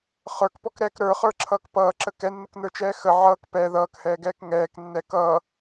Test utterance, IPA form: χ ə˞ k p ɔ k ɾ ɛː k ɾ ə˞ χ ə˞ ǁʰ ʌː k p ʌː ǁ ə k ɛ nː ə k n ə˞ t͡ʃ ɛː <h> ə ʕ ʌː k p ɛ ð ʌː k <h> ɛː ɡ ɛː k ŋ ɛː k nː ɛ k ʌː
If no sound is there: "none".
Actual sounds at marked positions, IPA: x, h

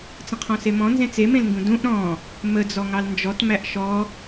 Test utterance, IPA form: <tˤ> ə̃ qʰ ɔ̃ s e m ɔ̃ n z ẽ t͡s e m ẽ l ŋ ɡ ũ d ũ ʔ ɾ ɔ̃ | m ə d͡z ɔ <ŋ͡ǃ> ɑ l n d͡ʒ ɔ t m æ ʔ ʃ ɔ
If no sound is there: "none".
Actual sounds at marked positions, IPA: t͡s, ŋ

